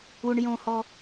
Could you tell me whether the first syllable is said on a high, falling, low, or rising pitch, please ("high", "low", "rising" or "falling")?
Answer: low